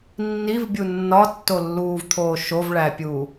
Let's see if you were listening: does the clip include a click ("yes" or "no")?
no